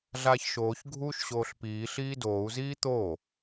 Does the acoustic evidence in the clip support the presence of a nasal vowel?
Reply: no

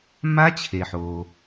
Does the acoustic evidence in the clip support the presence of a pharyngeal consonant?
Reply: yes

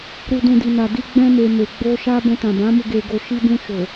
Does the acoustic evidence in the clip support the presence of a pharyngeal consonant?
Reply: no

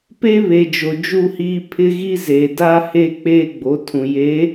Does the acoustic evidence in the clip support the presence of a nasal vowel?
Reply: yes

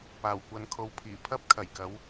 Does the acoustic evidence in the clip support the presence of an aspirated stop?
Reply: yes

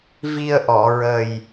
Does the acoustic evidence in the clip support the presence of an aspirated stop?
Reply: no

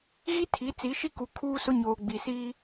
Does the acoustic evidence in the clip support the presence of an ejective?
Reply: no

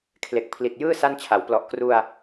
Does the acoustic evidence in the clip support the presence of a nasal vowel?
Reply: no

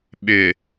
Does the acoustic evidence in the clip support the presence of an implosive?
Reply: yes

